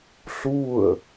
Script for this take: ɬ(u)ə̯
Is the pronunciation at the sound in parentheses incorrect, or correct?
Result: correct